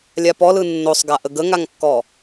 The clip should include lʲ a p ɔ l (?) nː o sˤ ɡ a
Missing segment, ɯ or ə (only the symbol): ɯ